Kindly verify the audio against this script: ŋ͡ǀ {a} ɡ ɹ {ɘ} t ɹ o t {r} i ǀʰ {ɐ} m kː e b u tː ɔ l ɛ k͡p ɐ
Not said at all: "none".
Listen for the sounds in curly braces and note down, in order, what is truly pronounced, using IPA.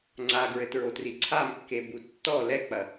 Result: a, ɘ, r, a

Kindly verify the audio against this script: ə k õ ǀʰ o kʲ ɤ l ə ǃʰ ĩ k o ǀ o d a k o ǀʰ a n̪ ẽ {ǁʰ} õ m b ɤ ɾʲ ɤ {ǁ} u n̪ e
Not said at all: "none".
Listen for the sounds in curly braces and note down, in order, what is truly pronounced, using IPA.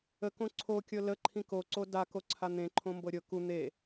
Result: ǃʰ, k

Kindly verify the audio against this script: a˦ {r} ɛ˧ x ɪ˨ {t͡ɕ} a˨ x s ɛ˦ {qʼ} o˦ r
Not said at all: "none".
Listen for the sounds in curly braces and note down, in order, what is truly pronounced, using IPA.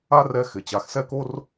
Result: r, t͡ɕ, k

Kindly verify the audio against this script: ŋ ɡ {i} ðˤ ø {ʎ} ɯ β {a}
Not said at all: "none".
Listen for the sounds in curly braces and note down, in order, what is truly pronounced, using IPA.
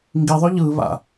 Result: i, ʎ, a̰

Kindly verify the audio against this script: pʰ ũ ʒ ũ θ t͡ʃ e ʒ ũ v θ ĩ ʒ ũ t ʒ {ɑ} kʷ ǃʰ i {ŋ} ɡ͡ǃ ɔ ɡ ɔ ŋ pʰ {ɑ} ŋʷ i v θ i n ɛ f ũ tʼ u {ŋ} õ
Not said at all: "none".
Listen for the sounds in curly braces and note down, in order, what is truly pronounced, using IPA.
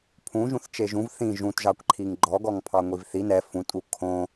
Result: ɑ, ŋ, ɑ, kʰ

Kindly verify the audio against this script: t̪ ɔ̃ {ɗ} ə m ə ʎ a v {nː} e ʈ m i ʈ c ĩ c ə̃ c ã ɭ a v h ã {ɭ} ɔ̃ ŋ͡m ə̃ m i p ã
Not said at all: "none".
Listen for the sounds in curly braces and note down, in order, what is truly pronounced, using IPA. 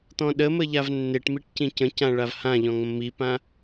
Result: ɗ, nː, ʎ

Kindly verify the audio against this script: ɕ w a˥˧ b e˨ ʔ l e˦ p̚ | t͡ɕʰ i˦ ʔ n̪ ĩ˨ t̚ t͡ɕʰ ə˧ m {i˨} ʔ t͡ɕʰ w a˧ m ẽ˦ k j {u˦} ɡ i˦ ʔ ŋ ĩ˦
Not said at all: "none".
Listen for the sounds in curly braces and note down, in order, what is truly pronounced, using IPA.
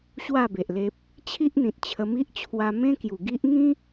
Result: i˦, u˨˩

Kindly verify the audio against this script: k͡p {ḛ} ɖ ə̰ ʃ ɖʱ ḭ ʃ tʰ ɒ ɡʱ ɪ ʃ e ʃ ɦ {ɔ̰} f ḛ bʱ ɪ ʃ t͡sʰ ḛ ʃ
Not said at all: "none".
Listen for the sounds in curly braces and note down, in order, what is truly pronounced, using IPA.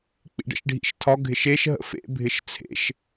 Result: ḭ, ə̰

